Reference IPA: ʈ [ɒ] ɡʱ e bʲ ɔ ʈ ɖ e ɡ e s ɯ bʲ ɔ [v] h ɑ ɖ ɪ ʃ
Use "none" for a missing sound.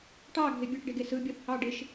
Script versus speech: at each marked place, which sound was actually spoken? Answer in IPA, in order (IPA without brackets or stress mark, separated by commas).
ɑ, θ